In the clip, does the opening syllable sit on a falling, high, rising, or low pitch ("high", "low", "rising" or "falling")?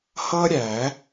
high